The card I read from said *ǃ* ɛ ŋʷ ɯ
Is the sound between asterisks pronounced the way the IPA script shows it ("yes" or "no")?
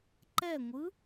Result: yes